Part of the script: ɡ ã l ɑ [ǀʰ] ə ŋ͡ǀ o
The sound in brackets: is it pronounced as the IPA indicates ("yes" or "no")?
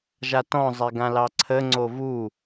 yes